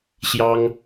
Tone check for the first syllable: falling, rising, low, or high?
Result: high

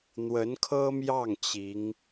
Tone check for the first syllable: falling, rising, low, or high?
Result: rising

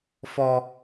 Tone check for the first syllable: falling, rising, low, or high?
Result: high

